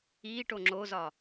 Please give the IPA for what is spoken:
iːʈo ŋ͡ǁozɒ

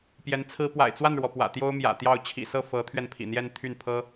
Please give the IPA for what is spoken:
pjɛ˧˥nt͡sʰɹ̩˥ pwa̰˨˩ɪ̯t͡swa˥˩nɻwɔ˩ pwä̰˨˩t̪jo˥ʊ̯mjä̰˨˩ t̪jɑ˥˩ʊ̯ t͡ɕʰḭ˨˩sɤ˥˩ fɤ˧˥t̪ʰɥɛ˧n pʰḭ˨˩n̪jɛ˥˧nt̪ʰy˥˩npʰɤ˥

